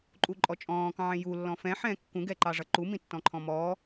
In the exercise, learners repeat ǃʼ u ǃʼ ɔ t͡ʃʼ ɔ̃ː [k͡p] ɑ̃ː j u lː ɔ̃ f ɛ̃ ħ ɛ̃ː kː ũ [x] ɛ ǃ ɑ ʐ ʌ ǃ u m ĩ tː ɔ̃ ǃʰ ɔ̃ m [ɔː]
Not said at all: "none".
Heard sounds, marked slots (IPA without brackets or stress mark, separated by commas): k, ɡ, ɔː